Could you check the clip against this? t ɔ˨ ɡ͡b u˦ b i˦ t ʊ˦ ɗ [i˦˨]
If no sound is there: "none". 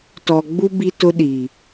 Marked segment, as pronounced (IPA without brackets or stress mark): i˨